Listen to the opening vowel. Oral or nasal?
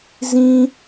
nasal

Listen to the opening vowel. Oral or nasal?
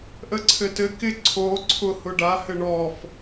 oral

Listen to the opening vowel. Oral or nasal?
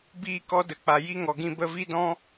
oral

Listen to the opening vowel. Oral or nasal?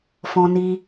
nasal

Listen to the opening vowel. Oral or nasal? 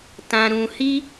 nasal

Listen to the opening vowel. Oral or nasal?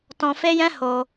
nasal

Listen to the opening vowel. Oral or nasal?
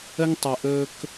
oral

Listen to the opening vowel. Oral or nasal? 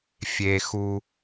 oral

